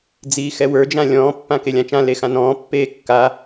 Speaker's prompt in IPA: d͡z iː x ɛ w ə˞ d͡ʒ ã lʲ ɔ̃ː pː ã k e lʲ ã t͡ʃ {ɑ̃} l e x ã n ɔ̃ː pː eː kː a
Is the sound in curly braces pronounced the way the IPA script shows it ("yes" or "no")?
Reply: no